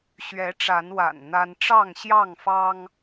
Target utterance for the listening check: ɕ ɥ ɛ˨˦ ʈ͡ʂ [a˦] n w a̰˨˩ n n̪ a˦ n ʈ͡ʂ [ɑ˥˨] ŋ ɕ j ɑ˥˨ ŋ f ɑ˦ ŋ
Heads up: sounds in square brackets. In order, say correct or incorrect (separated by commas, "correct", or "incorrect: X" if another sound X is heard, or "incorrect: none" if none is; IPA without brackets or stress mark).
incorrect: a˨˦, correct